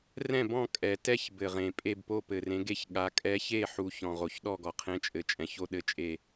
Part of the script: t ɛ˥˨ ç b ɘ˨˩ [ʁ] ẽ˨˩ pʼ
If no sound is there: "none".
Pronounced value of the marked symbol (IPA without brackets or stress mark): ʁ